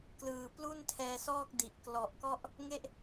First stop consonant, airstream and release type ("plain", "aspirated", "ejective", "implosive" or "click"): plain